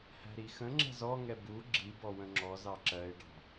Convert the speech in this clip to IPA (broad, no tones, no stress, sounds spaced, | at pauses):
h æ̤ ɾ i x ə̃ ŋ͡ǁ ɛ̤ z ɔ ŋ ɛ b u ɡ͡ǁ i b ɔ w ə̃ ŋ͡ǁ ɔ z ɑ ǁ ɜ ɪ̯ ɖ ɑ̤